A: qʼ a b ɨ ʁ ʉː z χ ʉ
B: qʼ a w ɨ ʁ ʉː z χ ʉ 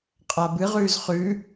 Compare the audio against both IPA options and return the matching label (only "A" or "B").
A